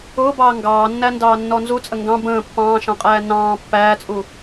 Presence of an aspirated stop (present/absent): absent